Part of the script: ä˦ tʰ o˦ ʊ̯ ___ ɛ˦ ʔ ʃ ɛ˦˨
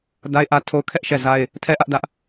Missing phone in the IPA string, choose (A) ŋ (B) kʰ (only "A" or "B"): B